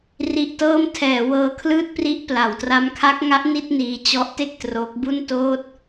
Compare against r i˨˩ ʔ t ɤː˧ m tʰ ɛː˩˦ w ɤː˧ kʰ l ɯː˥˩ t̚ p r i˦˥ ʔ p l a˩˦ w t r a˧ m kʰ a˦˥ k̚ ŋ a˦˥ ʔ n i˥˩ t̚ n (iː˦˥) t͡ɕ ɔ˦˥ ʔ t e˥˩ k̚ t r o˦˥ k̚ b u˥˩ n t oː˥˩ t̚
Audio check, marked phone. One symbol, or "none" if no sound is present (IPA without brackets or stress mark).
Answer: iː˧